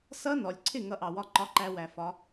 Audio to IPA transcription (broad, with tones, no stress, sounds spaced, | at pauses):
s ʌ˦˥ n ɔ˩ lʲ ǀʰ ɪ˥˩ ŋ ʌ˦˥ ʔ ɑ˩ w ɒ˥˩ ǃ ɒ˧ ǃ æ˧ w æ˩ f ɒ˩˧